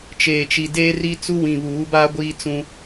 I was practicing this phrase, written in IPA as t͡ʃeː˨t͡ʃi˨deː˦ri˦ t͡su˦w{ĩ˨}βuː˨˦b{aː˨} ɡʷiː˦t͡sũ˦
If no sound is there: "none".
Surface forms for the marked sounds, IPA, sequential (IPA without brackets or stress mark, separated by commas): ĩ˨, aː˦